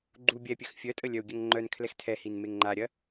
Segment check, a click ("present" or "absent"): present